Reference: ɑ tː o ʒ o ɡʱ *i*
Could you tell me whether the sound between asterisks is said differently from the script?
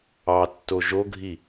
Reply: no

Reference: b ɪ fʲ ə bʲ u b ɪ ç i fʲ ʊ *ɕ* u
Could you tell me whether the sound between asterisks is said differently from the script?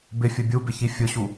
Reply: no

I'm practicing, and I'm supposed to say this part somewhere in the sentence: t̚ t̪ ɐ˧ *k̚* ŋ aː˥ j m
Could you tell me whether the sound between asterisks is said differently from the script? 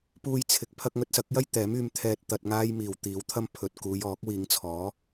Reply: yes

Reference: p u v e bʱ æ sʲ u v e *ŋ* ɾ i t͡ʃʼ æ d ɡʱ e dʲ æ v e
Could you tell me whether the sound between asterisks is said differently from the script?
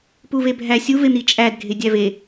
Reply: yes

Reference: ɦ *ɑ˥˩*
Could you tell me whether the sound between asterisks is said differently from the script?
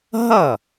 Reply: yes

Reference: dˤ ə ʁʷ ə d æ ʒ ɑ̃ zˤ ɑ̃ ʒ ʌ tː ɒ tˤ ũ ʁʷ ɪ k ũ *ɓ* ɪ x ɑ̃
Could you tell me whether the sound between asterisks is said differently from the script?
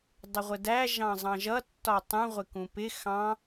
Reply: yes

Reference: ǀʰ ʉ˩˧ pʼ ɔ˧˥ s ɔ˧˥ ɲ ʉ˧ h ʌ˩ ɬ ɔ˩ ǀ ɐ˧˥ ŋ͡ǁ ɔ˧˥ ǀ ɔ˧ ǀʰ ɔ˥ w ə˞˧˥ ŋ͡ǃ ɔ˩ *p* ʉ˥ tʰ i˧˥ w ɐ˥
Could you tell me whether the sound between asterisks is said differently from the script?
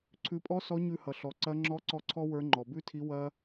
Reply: yes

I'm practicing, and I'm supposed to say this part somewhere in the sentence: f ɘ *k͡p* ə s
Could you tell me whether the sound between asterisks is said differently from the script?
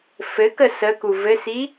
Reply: yes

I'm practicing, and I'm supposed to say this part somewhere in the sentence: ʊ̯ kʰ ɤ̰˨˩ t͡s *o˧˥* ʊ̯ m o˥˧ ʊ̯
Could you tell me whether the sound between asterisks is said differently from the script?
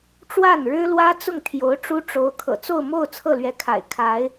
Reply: yes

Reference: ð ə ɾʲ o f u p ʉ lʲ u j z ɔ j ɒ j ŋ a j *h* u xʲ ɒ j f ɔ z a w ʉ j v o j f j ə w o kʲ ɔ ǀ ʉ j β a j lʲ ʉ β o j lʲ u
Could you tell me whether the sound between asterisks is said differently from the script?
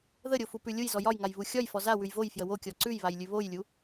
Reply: yes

